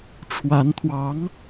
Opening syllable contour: rising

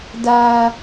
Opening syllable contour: high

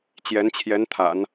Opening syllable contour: rising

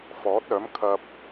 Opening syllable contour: rising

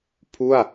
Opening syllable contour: falling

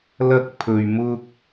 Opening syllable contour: high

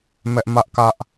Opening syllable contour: high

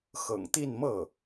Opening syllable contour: low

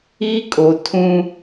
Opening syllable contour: high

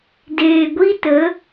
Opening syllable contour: low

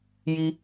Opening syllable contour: high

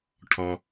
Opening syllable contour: low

